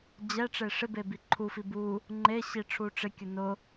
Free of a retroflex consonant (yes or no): no